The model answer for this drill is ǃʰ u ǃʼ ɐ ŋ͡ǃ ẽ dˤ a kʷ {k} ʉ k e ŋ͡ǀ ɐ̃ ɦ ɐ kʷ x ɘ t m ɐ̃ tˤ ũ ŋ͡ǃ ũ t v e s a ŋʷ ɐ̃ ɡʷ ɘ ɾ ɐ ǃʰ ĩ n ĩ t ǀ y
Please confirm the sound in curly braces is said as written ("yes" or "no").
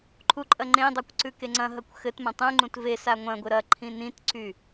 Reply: no